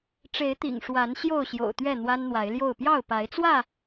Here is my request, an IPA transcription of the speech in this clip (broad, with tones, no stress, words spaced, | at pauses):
ʈ͡ʂe˨˦ɪ̯t̪ḭ˨˩ŋ ʂwa˨˦n ɕjo˥˨ʊ̯ɕjo̰˨˩ʊ̯t̪ɥɛ˥˨ n̪wa˦nn̪wa˨˦ɪ̯ljo˥˨ʊ̯ pjɑ˥˨ʊ̯pa˨˦ɪ̯t͡swä˥˨